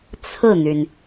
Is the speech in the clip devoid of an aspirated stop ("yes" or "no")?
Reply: no